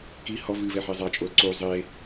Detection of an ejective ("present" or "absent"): present